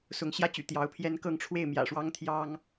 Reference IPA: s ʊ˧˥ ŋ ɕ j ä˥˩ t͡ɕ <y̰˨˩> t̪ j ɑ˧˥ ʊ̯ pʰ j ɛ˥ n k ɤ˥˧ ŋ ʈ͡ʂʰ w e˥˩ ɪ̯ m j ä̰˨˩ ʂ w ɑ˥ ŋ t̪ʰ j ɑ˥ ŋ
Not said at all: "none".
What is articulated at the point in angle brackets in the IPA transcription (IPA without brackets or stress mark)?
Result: y̰˨˩